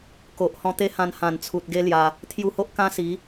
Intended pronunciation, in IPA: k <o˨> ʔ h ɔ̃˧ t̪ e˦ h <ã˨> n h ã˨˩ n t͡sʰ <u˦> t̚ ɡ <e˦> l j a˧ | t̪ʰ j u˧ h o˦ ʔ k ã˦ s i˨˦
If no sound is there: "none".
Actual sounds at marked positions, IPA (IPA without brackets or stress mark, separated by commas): o˨, ã˧, u˨, e˦